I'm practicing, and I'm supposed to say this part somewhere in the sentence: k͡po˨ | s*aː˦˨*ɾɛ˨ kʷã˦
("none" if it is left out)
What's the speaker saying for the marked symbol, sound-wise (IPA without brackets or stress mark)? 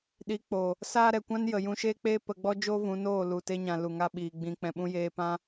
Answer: aː˦